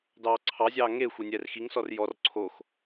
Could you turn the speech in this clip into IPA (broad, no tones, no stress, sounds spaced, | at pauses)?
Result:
d ɑː ǀʰ ɑ zʲ ɑː ŋ e xʷ e nʲ ɛː r x i ŋ s ɔ r j ɔ r ǀʰ o x